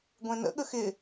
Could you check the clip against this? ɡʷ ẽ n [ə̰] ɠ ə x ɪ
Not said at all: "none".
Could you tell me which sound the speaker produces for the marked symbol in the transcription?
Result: ə̰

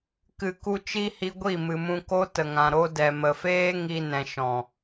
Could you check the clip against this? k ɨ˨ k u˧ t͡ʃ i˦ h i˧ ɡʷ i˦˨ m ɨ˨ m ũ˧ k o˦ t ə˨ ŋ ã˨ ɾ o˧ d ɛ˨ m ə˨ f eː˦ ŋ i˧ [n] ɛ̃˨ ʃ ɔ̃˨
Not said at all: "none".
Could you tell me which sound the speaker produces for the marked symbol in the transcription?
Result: n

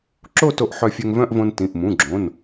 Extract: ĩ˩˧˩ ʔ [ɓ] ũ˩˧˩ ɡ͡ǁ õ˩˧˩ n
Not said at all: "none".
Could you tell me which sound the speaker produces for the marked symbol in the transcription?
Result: m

